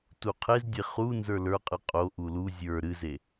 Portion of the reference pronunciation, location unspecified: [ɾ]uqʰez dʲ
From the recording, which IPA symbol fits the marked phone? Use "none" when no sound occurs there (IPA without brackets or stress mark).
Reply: t